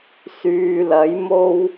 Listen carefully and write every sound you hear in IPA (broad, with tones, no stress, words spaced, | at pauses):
syː˨lɐ˨˥jmo˥w